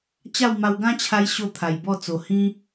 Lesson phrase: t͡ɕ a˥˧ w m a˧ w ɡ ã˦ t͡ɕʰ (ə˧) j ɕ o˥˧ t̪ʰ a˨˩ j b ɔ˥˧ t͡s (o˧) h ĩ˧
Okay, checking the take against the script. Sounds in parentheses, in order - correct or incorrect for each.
incorrect: a˧, incorrect: o˨˩

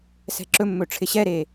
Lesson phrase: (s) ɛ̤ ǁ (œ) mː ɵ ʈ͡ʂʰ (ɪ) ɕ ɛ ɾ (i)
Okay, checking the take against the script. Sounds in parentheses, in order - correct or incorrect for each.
correct, incorrect: ɵ, correct, incorrect: e

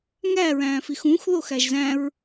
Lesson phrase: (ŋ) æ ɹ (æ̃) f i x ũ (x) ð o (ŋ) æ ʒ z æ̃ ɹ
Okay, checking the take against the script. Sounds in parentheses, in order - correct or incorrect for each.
correct, incorrect: æ̃ː, correct, incorrect: x

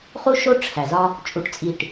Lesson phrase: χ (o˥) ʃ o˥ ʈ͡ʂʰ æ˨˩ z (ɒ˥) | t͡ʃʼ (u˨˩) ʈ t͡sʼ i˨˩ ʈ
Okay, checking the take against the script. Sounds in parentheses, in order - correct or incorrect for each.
incorrect: u˥, correct, correct

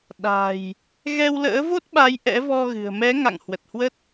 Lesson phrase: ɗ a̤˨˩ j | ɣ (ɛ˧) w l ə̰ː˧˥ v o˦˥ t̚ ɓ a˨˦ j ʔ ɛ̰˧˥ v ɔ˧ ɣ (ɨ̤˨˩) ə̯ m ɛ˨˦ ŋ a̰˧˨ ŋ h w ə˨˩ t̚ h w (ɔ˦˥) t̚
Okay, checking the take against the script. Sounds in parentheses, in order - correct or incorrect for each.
correct, correct, incorrect: ə˦˥

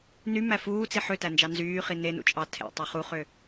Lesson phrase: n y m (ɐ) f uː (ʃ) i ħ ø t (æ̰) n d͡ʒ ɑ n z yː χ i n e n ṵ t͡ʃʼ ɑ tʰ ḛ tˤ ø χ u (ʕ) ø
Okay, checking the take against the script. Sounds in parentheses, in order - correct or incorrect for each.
incorrect: æ, incorrect: t͡s, incorrect: æ, incorrect: χ

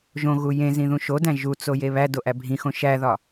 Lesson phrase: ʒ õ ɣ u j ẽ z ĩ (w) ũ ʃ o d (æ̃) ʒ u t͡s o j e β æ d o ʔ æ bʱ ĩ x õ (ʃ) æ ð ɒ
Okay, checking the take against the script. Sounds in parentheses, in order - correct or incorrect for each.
incorrect: ð, correct, correct

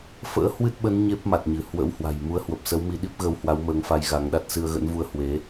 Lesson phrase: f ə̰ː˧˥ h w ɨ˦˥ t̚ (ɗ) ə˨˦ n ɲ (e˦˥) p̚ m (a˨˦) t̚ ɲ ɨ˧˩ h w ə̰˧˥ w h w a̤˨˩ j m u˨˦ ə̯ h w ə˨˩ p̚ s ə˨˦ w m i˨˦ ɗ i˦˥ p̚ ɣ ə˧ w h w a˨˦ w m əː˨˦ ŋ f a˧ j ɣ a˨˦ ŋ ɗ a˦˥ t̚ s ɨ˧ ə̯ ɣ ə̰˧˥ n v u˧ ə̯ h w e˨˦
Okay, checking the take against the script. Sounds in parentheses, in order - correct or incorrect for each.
incorrect: ɓ, correct, incorrect: a˨˩

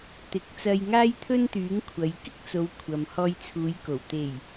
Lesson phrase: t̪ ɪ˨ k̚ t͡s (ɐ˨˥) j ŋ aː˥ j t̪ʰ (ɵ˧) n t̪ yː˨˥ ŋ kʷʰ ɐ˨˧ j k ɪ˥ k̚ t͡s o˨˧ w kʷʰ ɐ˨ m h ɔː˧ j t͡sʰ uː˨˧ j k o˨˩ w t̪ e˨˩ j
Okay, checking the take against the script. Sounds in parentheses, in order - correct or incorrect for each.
incorrect: ɐ˧, incorrect: ɵ˥

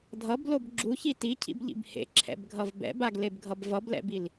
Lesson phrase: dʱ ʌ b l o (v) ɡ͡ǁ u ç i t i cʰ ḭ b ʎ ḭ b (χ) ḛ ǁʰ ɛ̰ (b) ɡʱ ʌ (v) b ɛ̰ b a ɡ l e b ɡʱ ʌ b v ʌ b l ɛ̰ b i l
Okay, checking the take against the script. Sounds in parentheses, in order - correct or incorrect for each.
incorrect: b, incorrect: h, correct, correct

